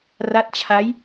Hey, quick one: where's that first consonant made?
tongue tip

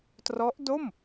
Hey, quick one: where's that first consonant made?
tongue tip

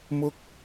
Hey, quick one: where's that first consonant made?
lips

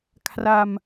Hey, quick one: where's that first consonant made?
velum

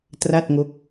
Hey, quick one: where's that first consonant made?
tongue tip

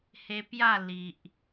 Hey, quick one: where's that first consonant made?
throat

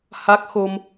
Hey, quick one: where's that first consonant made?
throat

